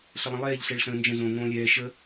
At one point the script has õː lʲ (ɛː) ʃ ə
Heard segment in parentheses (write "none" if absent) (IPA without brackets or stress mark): ɛː